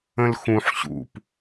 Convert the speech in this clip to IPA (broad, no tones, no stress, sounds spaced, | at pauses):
ə̃ l x ũ ħ ɕ ṵ p